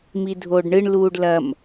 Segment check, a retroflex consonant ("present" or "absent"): present